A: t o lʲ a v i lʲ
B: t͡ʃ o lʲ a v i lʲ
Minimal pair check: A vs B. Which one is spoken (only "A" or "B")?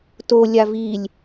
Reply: A